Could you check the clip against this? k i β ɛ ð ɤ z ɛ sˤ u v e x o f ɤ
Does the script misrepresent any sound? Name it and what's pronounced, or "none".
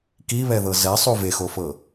none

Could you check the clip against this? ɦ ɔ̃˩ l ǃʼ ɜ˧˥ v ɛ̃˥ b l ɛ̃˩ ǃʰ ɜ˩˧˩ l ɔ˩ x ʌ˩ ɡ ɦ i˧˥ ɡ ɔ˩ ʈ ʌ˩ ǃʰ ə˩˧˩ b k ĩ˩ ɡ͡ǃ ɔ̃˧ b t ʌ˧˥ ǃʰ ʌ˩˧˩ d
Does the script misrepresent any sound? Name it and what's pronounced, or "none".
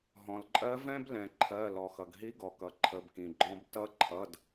ʈ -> k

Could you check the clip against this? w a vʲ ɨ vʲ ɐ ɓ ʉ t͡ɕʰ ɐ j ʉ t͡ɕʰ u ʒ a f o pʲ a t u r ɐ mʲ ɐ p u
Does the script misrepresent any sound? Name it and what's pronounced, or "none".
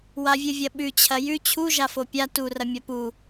none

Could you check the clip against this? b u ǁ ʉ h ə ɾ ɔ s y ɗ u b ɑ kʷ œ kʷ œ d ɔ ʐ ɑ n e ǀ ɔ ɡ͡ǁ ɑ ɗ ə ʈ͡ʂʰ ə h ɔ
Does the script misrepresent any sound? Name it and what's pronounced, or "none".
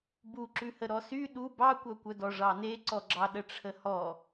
none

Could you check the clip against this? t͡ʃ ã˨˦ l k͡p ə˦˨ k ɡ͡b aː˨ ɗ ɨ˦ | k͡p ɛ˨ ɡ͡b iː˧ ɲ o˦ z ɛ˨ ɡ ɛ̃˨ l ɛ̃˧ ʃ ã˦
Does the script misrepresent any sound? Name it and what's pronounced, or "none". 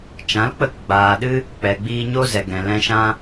none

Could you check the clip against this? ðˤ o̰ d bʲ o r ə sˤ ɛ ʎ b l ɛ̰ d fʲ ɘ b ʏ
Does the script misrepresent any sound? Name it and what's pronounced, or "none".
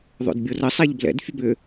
none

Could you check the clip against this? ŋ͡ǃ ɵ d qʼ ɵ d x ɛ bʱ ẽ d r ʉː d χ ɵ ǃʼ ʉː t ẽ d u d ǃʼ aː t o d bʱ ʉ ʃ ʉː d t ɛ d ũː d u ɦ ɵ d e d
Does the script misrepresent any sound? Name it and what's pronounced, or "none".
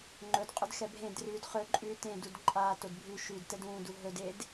none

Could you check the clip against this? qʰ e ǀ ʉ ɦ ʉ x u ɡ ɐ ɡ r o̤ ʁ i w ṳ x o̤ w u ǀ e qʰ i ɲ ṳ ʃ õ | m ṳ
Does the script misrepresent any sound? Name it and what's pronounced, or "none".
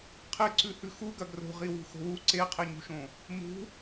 ɦ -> h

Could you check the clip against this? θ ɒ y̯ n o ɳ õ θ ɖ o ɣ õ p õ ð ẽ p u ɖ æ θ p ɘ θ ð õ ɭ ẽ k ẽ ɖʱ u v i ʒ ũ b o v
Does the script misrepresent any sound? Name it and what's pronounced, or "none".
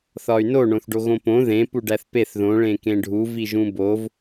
ɘ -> e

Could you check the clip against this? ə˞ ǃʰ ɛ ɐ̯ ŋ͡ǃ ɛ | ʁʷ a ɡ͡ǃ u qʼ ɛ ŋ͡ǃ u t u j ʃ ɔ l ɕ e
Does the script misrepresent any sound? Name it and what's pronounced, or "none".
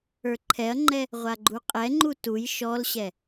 e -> ɛ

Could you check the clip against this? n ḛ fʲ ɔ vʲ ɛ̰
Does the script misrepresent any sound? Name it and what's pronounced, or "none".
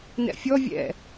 ḛ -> ɛ̰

